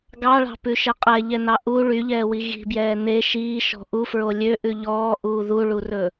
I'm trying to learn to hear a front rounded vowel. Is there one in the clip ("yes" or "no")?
yes